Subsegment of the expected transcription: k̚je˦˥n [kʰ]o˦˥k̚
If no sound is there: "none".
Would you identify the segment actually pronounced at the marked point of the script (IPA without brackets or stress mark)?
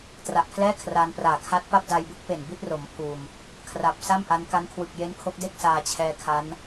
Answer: kʰ